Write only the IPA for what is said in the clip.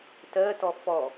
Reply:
t ɜ t ɔ f ɔ

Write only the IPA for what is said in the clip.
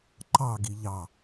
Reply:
ǃ ɑ ɡ i ʎ ɑ

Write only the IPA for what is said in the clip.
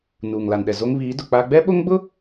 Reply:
n uː˨ ŋ l a˨ n ɗ ɛ˨ z o˦ ŋ β iː˨˦ d ʊ˨ k͡p a˦ ɡ͡b ɛ˦ ɓ o˦ ŋ ɡ͡b ʊ˦

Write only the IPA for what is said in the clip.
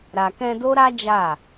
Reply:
ɾ a˨ k ɛ̃˧ d o˦ ɾ a˦ d͡ʒ a˦˨

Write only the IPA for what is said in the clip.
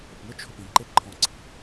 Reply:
ʊ p ŋ ʊ t͡ʃʰ ʊ p ĩ ǃ e ǃʰ ɔ̃ ǀ i̤

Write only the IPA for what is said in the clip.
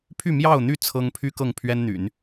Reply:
pʰ y˥˧ m j ɑ˥˧ ʊ̯ n̪ y˥˩ t͡sʰ ɤ˥ ŋ pʰ y˥ k ɤ˥˩ ŋ pʰ ɥ ɛ˥ n n̪ y̰˨˩˦ n

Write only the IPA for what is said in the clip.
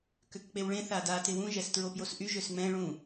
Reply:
k ø k k͡p e w ɭ ẽ θ a d a t ɪ w ũ ʒ ɛ s t ɹ o p j o s ʔ y ʒ ø s ŋ͡m ɛ̃ ɭ ũ

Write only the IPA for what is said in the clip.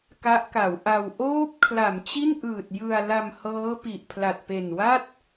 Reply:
k a˦˥ ʔ k a˩˦ w ʔ a˧ w ʔ oː˦˥ p̚ kʰ l a˩˦ m t͡ɕ i˥˩ n ʔ ɯː˨˩ t̚ j ɯ˧ a̯ l a˧ m h ɤː˦˥ p i˨˩ ʔ pʰ l a˨˩ t̚ p e˨˩ n w a˥˩ t̚

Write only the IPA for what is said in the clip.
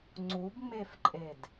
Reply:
ŋ͡ǀ u b ŋ͡m e f ǃʼ e d

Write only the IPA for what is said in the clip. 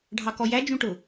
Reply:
ɖʱ ɑ k ɔ j æ d͡ʒ ũ ʈ ʊ

